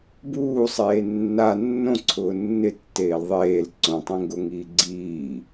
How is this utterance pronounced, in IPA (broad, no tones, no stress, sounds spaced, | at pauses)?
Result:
b uː sˤ eː nː a nː õ ǀʰ ʊː nː ɪ tː eː l ðˤ eː l ǀ õ tˤ ẽ ŋ ɡ o ŋ iː ɡ͡ǀ iː